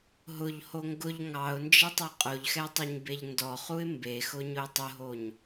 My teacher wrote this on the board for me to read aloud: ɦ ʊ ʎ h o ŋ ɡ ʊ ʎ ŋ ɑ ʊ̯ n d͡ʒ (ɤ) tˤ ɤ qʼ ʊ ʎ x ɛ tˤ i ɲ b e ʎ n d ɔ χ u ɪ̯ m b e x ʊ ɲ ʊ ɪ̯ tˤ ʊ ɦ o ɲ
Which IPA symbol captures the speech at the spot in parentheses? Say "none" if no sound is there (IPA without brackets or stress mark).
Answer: ɤ